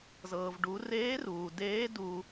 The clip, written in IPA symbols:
zɤː˩vɖu˩˧ reː˧˥ruː˩deː˧˥ du˧

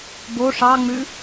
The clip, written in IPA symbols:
bo ʂɑ ŋ͡mʉ

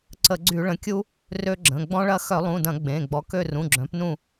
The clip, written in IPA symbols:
ǀə˧˩˧ɡ͡ǀy˧˩˧ɭə̃˩˥kʲu˦ | rø˦ɡ͡ǁə̃˩˧˩ ɡ͡bɔ̃˦ɭɐ˦ xœ˧˩˧lˠũ˩˧˩dɐ̃˧˩˧ ɡ͡bẽ˩˧˩ ɡ͡bɔ˩˥kø˦˨ rũ˩˧˩ɡ͡ǁœ̃˩˥pnũ˦˨

